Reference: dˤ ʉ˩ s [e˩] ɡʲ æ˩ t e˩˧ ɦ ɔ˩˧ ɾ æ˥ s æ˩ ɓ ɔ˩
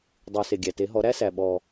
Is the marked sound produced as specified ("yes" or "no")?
yes